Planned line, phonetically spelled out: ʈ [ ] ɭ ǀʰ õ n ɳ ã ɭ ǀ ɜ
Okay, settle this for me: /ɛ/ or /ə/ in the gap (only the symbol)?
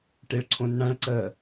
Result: ɛ